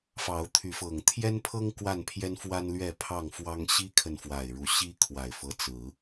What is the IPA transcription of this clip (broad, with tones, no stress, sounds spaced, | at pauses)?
f ɑ˨˦ ʊ̯ t̪ʰ y˨˦ f ɤ˨˩ ŋ t̪ʰ j ɛ˦ n pʰ ɤ˦ ŋ k w a˥˨ n pʰ j ɛ˦ n f w a˦ n l ɥ ɛ˥˨ pʰ ɑ˥˨ ŋ f w ɑ˦ ŋ ɕ i˦ kʰ ə˨ n f w a˨˩ ɪ̯ ɻ u˨˦ ɕ i˦ kʰ w a˨˩ ɪ̯ f ɤ˦ t͡s ɹ̩˨˦